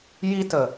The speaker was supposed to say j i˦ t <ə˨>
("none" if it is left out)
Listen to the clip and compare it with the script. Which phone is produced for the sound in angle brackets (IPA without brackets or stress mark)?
ə˨